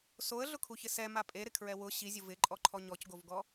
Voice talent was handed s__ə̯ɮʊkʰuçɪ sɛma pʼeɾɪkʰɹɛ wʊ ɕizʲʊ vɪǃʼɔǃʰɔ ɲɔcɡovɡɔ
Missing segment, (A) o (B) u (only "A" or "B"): A